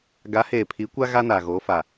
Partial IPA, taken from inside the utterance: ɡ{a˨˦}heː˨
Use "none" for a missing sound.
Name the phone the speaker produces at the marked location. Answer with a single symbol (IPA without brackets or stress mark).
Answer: a˨˦